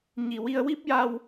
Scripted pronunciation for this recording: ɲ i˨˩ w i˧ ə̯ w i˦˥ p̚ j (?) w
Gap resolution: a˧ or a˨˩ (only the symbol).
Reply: a˧